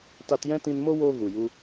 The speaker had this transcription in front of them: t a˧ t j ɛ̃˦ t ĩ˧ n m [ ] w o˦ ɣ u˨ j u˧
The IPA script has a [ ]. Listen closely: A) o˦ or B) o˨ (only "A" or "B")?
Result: A